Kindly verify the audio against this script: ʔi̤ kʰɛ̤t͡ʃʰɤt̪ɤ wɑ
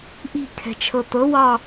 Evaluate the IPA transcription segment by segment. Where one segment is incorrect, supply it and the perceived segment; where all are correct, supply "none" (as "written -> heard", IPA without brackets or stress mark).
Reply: none